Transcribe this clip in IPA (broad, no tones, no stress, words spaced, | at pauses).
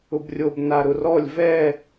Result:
ʊbrʲob naɾʊrɔlʲ vɛ